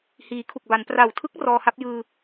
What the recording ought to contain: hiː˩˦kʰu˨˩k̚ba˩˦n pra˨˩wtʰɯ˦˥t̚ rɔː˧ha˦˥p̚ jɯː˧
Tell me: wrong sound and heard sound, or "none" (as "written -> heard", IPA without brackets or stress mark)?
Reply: t̚ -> k̚